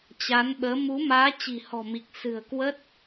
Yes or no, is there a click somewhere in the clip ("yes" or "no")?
no